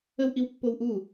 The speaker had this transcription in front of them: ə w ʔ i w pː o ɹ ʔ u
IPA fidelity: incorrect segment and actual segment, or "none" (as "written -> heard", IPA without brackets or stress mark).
ɹ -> w